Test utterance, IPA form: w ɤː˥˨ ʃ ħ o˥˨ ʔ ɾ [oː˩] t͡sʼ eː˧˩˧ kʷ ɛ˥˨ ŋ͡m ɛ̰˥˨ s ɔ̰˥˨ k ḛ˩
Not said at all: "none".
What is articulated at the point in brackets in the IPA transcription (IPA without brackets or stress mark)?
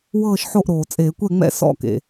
oː˩